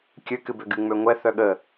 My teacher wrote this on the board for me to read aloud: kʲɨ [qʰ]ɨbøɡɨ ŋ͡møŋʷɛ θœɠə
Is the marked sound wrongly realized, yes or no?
yes